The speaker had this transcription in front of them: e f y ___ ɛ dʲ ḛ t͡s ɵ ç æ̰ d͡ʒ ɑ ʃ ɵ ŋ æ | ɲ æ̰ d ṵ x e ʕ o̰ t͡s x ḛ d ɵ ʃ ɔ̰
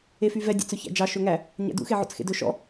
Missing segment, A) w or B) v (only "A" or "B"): B